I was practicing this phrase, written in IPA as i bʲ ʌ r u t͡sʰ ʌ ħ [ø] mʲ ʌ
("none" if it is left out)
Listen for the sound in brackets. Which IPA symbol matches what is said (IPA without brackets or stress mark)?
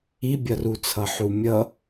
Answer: u